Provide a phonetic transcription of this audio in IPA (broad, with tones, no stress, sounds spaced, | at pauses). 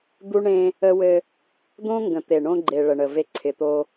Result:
d̪ u˦ ɳ ẽ˦ | ə˦ w ɘ˦ | d̪ õ˦ ŋ ɡ ə̃˨ t̪ e˨ ɳ õ˦ ɡ͡ǃ e˨ ɭ ə˨ ɳ ə˨ v e˦ ǀʰ ɪ˨ t̪ o˦